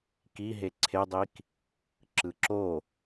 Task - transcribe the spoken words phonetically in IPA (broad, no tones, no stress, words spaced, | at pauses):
kiɦe ǀʰedˤik | ǁɯǁo